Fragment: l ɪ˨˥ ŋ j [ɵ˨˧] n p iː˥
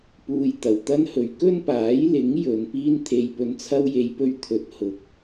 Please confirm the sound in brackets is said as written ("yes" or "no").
yes